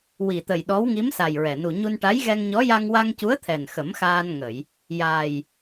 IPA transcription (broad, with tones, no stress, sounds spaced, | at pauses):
w i˨˩ t̪ ə˨˩ j ɗ ɔ˧˥ w ŋ i˧˥ m s a˨˩ j ɹ ɛ˨˩ n u˨˩ ɲ u˧ n ʈ a˧˥ j ɣ ɛ˧ ŋ ɲ ɔ˧˥ j a˧ ŋ w a˧ ŋ c u˧˥ ə̯ t̪ʰ ɛ˨˩ n x ə˨˩˦ m x aː˧ n ŋ ə˨˩˨ j | j aː˨˩ j